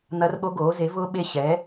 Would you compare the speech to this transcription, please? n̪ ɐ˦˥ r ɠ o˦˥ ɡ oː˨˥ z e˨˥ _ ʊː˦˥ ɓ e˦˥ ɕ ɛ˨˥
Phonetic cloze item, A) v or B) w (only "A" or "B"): A